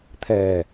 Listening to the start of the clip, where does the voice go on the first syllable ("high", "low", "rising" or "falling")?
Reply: low